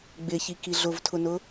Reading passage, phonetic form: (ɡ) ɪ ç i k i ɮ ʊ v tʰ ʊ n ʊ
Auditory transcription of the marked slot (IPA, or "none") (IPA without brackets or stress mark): ɡ͡b